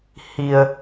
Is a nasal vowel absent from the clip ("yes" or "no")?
yes